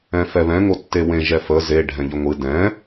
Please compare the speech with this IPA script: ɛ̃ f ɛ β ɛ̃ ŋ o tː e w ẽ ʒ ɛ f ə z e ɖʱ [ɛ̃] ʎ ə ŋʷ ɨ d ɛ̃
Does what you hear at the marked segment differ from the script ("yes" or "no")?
no